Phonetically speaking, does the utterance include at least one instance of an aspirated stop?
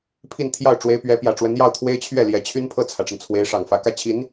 yes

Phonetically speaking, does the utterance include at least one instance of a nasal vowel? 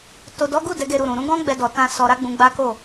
yes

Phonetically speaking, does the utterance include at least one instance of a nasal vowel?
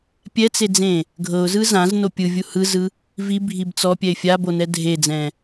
yes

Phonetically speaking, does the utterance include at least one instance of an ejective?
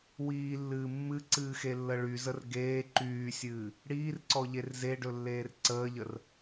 no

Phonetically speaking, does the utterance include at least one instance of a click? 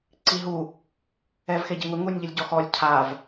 yes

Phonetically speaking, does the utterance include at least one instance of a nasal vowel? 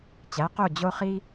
no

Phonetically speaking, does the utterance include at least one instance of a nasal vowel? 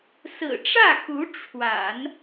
no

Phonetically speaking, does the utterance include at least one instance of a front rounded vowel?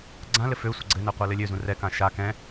yes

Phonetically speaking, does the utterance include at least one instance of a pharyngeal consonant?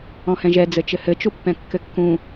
no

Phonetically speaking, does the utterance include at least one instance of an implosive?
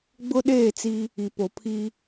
yes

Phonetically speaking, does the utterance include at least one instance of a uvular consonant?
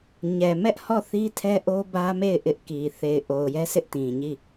no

